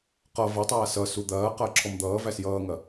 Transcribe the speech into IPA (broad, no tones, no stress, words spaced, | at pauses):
qʌ vɐtˤaː sʌ sud̪ɐːqɐː ǁʰɔmd̪ʌːvæs jʌːŋɐ